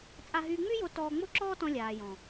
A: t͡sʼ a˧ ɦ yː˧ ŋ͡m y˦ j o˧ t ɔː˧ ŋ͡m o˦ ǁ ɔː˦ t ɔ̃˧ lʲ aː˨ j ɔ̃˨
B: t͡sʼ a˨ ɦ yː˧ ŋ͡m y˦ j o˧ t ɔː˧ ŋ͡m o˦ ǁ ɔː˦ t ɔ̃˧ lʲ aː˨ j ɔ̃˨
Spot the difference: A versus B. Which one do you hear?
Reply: A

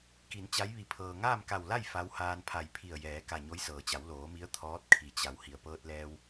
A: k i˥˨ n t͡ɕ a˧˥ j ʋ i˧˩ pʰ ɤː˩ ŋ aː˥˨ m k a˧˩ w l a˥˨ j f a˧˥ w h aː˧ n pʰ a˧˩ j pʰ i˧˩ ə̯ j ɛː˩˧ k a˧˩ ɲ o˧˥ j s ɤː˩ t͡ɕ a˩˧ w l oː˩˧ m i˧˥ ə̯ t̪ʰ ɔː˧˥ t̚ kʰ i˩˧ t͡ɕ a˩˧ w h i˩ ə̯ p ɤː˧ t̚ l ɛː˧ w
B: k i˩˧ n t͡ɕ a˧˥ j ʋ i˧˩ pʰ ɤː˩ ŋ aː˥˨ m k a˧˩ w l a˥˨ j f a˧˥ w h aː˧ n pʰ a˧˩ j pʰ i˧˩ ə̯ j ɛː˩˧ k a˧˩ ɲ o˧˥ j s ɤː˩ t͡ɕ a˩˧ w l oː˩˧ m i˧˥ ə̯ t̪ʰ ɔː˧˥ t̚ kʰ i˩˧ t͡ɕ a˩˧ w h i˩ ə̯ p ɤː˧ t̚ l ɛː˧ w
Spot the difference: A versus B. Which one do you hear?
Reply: B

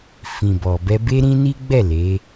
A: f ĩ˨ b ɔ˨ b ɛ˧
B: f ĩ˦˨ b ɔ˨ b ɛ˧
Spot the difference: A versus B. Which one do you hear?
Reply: A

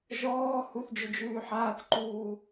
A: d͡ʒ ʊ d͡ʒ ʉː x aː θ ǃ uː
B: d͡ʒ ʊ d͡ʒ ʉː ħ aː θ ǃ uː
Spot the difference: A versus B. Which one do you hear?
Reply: B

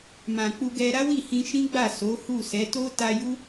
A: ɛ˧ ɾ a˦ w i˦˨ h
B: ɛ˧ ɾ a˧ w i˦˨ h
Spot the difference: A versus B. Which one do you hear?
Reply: A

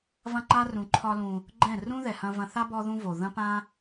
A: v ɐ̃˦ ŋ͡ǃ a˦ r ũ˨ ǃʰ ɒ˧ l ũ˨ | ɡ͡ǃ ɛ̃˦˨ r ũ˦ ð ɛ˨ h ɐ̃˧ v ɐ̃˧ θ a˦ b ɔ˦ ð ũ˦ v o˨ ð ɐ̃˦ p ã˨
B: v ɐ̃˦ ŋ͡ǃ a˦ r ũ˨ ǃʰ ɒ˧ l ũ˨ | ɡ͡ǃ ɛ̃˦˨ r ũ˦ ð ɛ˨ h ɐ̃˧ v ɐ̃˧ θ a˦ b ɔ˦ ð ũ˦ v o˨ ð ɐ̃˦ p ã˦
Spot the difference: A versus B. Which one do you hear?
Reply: B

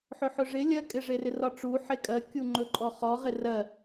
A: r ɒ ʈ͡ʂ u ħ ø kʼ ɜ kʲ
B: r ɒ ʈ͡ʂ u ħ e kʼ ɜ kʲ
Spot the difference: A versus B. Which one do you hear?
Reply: B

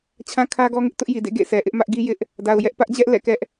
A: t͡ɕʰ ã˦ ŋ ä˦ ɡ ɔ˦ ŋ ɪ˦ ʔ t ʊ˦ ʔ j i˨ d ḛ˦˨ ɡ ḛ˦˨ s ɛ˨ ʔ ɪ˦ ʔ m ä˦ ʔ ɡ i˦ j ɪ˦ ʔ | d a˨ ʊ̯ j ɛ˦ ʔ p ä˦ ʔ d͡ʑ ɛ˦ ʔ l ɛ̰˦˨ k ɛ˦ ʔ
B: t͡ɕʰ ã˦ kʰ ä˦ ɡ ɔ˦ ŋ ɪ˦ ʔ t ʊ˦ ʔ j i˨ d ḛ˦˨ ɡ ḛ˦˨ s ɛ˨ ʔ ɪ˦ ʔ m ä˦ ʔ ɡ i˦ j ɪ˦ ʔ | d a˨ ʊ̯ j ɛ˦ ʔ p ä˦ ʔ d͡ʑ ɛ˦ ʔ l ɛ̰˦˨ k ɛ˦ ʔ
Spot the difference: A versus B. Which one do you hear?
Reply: B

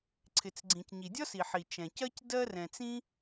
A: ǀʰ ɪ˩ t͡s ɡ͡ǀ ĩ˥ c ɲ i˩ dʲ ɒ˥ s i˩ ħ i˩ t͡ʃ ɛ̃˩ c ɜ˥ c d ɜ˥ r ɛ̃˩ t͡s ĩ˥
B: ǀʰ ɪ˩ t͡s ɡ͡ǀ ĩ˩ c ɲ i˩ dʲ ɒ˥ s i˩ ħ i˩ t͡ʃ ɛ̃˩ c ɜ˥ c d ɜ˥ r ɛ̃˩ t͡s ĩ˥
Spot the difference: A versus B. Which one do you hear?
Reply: B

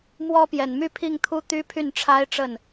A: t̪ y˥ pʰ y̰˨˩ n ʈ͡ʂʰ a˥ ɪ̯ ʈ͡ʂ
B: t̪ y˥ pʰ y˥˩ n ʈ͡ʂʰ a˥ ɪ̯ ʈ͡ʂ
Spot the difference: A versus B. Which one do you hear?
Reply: B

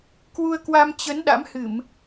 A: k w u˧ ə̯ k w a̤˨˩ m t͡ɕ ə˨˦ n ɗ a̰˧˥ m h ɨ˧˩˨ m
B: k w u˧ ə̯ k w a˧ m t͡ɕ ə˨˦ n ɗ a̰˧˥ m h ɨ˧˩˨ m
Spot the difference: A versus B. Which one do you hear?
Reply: B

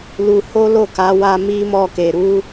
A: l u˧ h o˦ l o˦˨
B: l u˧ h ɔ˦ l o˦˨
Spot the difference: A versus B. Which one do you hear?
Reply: A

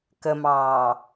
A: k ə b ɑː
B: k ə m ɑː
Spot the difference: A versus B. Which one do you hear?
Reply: B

